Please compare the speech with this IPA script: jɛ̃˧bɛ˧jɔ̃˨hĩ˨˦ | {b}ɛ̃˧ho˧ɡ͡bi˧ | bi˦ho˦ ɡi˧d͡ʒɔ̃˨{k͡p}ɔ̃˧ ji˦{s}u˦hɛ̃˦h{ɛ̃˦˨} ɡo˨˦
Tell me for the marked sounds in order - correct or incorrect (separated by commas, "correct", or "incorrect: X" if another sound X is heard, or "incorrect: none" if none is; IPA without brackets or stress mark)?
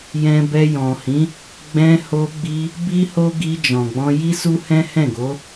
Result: incorrect: ɡ͡b, incorrect: ɡ͡b, correct, correct